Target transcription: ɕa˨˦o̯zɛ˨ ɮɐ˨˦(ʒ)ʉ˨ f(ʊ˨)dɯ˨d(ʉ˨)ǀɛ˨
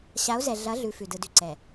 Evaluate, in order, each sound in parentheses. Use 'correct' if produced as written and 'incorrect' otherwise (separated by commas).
incorrect, incorrect, correct